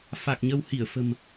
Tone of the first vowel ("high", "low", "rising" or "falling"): low